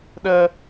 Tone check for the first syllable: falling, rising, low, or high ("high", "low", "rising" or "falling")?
high